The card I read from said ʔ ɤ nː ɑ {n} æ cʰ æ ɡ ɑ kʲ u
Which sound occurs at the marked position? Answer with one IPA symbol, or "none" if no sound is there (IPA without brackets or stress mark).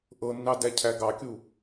d